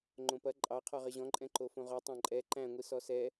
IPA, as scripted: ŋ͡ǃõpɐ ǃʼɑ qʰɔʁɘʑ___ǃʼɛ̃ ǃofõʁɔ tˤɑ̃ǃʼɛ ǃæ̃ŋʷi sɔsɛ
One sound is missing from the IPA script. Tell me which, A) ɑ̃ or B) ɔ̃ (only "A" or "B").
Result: B